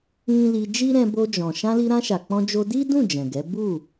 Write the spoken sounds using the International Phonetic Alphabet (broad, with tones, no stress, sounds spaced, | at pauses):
ĩ˦ l i˧ d͡ʒ i˦ ɾ ɛ̃˧ b o˧ d͡ʒ ɔ̃˨ ʃ ã˧ l i˧ ɾ ã˧ ʃ a˨ k͡p ɔ̃˧ d͡ʒ o˧ d i˦ d ũ˦˨ d͡ʒ ɛ̃˨ ɡ ɛ˨˦ b u˦˨